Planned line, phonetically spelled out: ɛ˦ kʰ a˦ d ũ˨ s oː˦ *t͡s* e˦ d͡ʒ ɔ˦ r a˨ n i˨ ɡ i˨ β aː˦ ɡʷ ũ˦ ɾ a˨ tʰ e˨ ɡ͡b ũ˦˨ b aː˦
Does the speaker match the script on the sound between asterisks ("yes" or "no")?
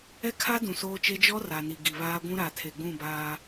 no